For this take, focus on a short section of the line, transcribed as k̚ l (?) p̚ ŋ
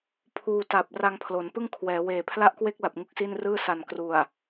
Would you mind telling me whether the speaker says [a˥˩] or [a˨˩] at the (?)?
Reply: a˨˩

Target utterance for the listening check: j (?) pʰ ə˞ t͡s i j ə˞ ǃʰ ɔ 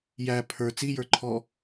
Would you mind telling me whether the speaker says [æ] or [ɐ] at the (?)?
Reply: æ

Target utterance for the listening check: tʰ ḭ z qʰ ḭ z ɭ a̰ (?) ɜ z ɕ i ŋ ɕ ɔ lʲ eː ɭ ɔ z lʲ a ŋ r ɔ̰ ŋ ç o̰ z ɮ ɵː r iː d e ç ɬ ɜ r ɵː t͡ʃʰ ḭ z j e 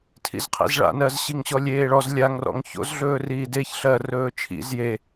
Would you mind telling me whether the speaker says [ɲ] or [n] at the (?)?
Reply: n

